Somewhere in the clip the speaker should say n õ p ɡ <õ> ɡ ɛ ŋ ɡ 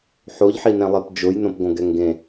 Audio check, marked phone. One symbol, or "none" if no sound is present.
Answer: õ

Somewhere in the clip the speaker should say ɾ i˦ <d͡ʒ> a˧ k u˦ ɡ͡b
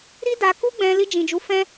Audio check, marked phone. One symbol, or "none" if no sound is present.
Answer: d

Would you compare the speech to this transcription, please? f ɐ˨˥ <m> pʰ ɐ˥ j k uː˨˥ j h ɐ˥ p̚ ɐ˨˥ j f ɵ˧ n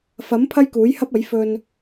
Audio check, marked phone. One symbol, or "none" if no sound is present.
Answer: m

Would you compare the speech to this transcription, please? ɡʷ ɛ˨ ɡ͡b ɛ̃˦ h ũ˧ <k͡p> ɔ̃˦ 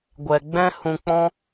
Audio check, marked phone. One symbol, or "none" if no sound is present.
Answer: k͡p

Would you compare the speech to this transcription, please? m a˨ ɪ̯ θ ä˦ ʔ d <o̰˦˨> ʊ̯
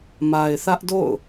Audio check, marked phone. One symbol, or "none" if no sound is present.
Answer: o̰˦˨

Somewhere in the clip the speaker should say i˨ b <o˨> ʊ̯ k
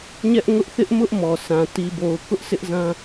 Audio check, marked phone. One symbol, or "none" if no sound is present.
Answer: o˨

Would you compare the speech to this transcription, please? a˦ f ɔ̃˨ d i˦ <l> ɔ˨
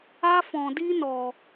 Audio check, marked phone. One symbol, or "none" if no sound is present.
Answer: n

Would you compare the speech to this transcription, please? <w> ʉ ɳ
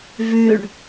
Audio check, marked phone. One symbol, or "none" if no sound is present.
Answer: v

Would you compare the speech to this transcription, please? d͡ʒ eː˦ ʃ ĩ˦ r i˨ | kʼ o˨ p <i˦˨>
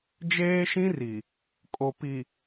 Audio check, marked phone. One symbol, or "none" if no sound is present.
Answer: i˨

